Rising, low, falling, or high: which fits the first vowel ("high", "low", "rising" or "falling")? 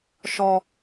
low